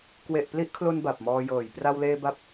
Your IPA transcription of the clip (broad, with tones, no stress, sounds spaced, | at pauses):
k w e˨˩ ʔ p l i˦˥ ʔ kʰ l o˧ n b a˨˩ p̚ m ɔː˧ j ɤː˨˩ j p r a˧ w l eː˧ b a˦˥ p̚